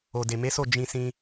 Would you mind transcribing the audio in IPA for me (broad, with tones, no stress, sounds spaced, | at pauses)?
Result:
o˨ d e˨ m e˨˦ s o˦˨ d͡ʒ ĩ˧ s ĩ˧